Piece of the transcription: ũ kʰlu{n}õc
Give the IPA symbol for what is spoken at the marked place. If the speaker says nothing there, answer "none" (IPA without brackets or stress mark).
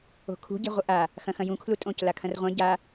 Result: tʼ